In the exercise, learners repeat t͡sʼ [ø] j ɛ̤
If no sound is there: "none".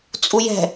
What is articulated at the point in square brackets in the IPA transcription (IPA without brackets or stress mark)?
u